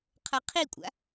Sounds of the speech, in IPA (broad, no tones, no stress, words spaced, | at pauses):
qʰɤqʰikʷʼa̰